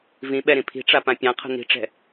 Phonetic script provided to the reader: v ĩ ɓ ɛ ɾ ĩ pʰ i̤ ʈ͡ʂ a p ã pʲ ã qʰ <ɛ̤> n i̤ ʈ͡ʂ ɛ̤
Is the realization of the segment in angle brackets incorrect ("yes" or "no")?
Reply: yes